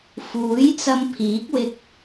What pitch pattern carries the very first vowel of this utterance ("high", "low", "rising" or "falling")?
rising